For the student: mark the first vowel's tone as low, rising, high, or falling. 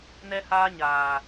high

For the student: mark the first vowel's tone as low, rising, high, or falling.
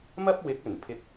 high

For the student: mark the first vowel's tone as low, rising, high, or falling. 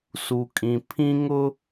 low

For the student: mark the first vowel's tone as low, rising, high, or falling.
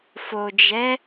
low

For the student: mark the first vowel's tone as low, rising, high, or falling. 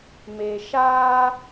low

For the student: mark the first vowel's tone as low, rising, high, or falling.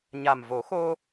low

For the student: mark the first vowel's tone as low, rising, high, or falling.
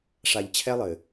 low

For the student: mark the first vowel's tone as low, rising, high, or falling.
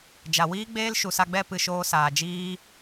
low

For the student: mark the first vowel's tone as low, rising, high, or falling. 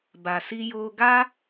low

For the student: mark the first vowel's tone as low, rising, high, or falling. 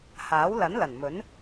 rising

